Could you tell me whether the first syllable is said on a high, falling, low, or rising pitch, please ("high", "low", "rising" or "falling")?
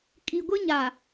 low